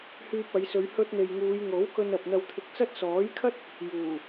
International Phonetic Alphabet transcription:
h yː˧ p̚ ɐ˨˧ j s ɵ˨˧ ɥ h ɵ˧ t̚ n̪ e˨ j ŋ uː˨˧ j ŋ o˨˥ w k ɵ˧ n ɐ˨ p̚ n̪ ɐ˧ w t̪ʰ ɪ˧ k̚ t͡s ɐ˥ t̚ s ɔː˨˥ j kʰ ɐ˥ t̚ | j uː˨˩

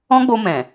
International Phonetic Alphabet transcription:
ɔ̃˦ ɡ͡b o˧ m ɛ̃˨

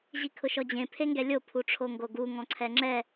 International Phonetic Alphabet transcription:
ʑ i kʰ ʊ ʃ ɔ d͡ʑ ẽ pʰ e ŋ ɡ ɛ lʲ o pʰ u ʈ͡ʂʰ o ŋ ɡ o ɡ u ŋ ɔ̃ ǀʰ ɛ ŋ͡ǁ ɛ

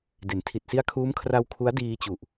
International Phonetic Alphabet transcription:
d e˩˦ n tʰ i˨˩ t̚ s i˦˥ a̯ kʰ uː˦˥ m kʰ r a˧ w kʰ u˦˥ a̯ d iː˧ t͡ɕ u˨˩ ʔ

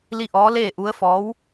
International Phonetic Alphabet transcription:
l i˥˨ ʔ ɔː˧˥ l eː˥˨ ʔ u˧˥ ə̯ f ɔː˧˥ w

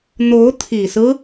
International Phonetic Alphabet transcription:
n̪ o˧˥ ʊ̯ t̪ʰ i˨˩ s ɹ̩˦

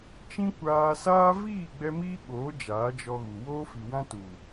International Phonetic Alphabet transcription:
t͡ʃ ĩ˦ kʷ aː˧ s aː˦ v iː˦˨ ɡ͡b ɛ˧ m iː˦ ɓ oː˨˦ d͡ʒ aː˨˦ d͡ʒ ɔ˧ ɣ u˨ w oː˧ f i˨ w ã˧ t u˨

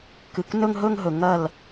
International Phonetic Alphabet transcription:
k ɨ˩ k n ɵ˥˧ ŋ ɦ ɵ˥˧ ŋ ɦ ɵ˩ ŋ ɐ˧˩ l

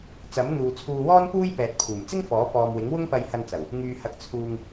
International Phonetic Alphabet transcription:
t͡s ɐ˨˥ m n̪ uː˨ t͡sʰ uː˧ w ɔː˥ n p uː˥ j p ɛː˨ t̚ pʰ uː˨˩ m t͡s ɪ˥ ŋ f ɔː˨˥ p ɔː˨ m w ɪ˨˥ ŋ w ʊ˥ ŋ p ɐ˧ j h ɐ˧ n t͡s ɐ˨˩ w | ŋ yː˧ h ɐ˧ k̚ t͡sʰ uː˨ ŋ

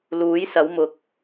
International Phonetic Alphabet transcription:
l uː˨˥ j s ɐ˨˧ w m ʊ˨ k̚

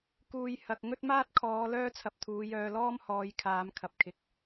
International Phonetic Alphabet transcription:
k uː˨ j h ɐ˨ k̚ ŋ ɵ˥ t̚ m aː˥ t̚ kʰ ɔː˨˧ l œː˥ t͡sʰ ɐ˧ p̚ t̪ʰ uː˨˧ j œː˧ l ɔː˥ m h ɔː˨˧ j kʰ aː˨˧ m kʰ ɐ˨ p̚ kʰ ɪ˨˥ k̚

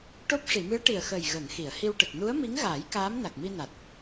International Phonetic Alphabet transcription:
ʈ o˦˥ p̚ ʂ i˨˩˨ m ɨ˧˥ ə̯ ʈ i˨˩ ə̯ x əː˨˩ j ɣ əː˨˩˨ ŋ x i˨˩˨ ə̯ h i˧ w ʈ ə˨˩ k̚ n u˧˥ ə̯ m i˧˥ ŋ ɣ aː˨˩˦ j k aː˧˥ m n a˨˩ k̚ m i˧ n a˨˩ t̚

